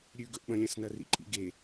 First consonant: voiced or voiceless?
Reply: voiced